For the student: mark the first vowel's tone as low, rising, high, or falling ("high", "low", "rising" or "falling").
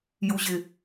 low